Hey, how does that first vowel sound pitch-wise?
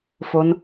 rising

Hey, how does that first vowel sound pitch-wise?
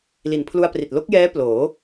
low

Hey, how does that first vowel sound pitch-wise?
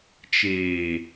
low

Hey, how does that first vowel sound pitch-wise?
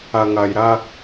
low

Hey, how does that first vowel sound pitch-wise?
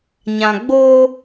low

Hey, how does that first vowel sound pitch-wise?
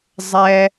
high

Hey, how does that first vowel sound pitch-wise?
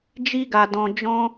high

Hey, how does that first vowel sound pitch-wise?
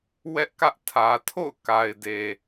high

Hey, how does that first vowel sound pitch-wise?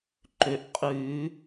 rising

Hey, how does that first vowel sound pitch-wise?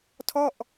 falling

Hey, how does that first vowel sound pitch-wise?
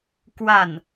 falling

